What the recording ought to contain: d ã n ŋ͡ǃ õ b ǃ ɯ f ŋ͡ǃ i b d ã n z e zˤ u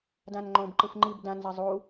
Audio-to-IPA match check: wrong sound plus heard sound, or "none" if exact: none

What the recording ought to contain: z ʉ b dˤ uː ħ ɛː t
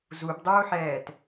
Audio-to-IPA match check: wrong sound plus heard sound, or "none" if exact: ʉ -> u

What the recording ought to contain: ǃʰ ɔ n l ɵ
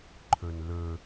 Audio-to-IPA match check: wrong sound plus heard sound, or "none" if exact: ɔ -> ɵ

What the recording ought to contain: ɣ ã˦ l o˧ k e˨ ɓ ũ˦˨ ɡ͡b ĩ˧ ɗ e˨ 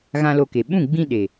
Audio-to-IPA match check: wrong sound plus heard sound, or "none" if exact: none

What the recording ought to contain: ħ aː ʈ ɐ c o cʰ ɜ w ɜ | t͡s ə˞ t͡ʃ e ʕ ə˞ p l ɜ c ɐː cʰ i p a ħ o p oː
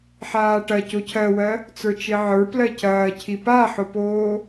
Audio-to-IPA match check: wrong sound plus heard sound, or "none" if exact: none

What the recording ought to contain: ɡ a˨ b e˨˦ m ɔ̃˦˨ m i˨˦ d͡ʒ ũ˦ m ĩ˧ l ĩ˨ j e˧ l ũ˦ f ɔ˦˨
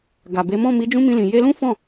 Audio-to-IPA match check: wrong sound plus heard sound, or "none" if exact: ɔ˦˨ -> ɔ̃˦˨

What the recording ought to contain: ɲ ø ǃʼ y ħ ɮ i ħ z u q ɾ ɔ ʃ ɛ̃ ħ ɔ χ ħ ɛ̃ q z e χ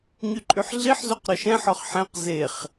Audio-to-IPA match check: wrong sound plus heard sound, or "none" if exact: ø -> y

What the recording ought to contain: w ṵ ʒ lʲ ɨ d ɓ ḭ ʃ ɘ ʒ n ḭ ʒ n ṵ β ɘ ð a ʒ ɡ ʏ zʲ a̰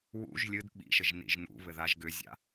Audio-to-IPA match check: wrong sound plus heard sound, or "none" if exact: none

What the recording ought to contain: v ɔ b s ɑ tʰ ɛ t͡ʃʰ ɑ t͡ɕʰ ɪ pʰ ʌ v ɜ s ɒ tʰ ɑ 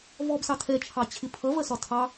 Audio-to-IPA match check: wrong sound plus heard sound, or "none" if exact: none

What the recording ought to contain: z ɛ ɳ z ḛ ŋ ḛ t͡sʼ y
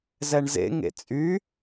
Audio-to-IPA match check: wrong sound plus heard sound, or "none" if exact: none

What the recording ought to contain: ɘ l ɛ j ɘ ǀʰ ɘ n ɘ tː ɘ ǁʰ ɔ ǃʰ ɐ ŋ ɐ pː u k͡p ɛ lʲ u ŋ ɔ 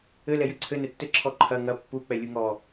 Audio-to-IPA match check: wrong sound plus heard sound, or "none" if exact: none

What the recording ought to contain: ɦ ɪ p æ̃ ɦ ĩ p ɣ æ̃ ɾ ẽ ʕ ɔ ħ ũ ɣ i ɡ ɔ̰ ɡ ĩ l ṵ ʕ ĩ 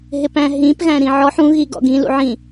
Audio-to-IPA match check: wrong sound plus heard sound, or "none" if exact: ẽ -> ĩ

